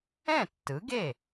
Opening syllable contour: falling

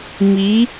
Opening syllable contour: rising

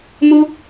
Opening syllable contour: high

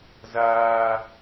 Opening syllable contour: high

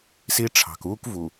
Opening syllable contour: high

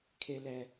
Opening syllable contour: high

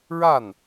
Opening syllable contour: falling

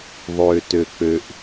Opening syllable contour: low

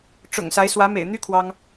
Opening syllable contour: low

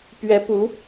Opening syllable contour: rising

